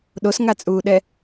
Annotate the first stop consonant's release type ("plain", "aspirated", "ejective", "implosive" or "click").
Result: implosive